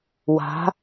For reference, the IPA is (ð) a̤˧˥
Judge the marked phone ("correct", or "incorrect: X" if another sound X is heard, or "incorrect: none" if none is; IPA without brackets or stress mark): incorrect: w